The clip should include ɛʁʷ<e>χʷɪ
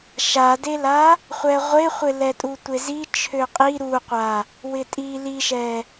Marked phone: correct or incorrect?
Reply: correct